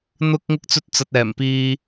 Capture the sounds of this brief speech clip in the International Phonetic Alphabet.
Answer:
n̪ʊ˥k̚ ŋɪ˥k̚t͡sɵ˥t̚t͡sɐ˧t̚ɛː˨˩m piː˥

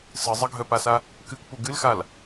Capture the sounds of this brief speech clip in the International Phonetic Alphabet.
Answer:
sɨ zˤəɡʱœpasa | kɨkpu ɡɨlxal

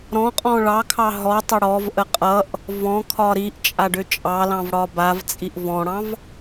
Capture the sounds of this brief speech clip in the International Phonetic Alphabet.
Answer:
ɾɔ̃qʼɔ̃ ɭɑkʰɑ ɦɔtˤə ɽɔvʔə qʼʌʔ | vɔ̃kʰɒ ɾiʔt͡ʃʼaɖʏ t͡ʃʼɑlɑ̃vɽɒ bavt͡sʼiʔ vɔ̃ɽɑ̃v

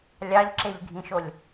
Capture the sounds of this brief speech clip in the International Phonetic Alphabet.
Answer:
lʲɑʎǁeʎɡʱĩʃolʲ

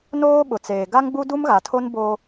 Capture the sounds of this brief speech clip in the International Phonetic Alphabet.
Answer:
noː˦ ɓʊ˨t͡seː˨ ɡa˦ŋɡ͡bu˦ du˦mɣa˨tʰo˦n boː˦

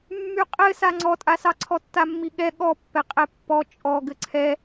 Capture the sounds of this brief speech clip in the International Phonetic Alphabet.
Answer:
mːyqʼɘ saŋ͡ǀɔtʼasɑ ǀʰɔtːamːiɠɛ ɠɔpːɛ qʼɛpːɔ t͡ʃʼɔ ɡɘǀʰɛ

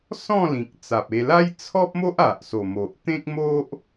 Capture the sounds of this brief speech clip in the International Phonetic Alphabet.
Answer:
sɔ̃˥˧ lĩ˨k̚t͡sa˨p̚e˧ la˦j t͡sʰɔ˦p̚mo˦ʔ a˨ʔso˨˩mo˨ʔ t̪ẽ˦k̚mo˦ʔ

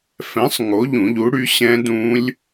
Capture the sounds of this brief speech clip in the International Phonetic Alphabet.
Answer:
fɛ̃˨˥sˤ ŋo˨˥ʎũ˨˩˦ʎu˨˥ɽy˨˥ ɕɛ̃˦˥dũ˦˥lʲ

